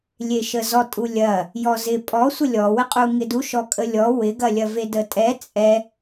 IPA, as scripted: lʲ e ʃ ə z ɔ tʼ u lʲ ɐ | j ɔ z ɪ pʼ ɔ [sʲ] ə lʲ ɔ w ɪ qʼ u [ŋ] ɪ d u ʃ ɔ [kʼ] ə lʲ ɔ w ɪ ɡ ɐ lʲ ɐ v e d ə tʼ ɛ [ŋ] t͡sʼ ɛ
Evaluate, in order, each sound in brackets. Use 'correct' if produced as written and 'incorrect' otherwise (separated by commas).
incorrect, correct, correct, incorrect